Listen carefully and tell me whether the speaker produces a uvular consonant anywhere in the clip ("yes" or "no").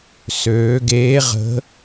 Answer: yes